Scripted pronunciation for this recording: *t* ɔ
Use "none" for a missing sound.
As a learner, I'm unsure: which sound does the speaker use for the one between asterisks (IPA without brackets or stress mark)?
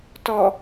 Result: t